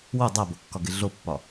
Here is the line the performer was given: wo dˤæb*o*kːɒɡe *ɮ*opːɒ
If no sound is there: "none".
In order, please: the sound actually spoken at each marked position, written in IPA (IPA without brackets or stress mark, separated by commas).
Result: o, ɮ